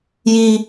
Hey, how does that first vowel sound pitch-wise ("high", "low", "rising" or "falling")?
high